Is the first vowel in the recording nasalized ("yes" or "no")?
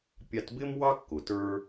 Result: no